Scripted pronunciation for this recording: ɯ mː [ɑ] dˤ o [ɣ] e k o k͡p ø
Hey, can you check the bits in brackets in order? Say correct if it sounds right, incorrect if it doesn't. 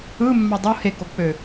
correct, incorrect

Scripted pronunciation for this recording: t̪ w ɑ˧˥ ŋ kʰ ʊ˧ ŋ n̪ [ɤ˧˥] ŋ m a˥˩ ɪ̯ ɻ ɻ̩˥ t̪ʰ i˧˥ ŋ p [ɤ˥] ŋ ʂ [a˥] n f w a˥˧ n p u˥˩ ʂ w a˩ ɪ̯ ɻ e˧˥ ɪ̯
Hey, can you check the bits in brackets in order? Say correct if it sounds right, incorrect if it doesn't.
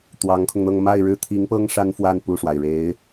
incorrect, correct, correct

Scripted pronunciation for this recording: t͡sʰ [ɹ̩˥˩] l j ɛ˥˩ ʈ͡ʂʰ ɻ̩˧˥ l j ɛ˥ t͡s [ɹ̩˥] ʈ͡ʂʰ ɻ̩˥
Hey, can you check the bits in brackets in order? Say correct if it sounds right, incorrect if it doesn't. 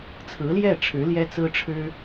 incorrect, correct

